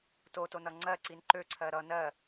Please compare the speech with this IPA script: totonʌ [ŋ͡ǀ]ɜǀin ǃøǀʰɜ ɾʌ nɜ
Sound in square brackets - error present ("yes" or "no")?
no